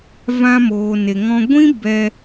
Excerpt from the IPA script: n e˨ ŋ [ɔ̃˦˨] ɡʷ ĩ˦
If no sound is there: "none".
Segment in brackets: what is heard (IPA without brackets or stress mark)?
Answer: ɔ̃˧